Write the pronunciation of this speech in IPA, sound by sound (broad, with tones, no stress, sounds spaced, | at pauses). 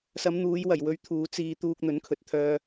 s ɐ˨˧ m n̪ uː˨˧ j w ɐ˨˩ j w ɵ˨˧ ɥ t̪ʰ uː˨˧ t͡s iː˧ t̪ uː˧ k̚ n̪ ɵ˨˥ n kʰ ɵ˨ t̚ t̪ʰ œː˧